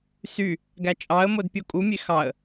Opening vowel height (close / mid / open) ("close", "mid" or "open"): close